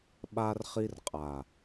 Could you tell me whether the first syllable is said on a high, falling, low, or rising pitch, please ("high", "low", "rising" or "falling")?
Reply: high